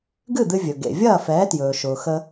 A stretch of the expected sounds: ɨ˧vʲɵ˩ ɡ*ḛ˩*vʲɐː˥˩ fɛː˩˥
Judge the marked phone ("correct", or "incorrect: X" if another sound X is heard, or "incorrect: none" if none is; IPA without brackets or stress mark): correct